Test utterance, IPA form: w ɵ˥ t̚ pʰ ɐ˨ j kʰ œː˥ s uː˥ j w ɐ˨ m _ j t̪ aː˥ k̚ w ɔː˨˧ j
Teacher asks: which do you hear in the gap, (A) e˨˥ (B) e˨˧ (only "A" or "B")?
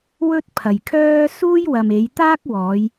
B